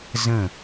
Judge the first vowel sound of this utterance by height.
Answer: mid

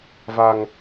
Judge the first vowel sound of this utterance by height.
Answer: low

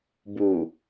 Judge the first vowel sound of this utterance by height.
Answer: high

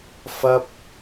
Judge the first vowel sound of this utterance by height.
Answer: low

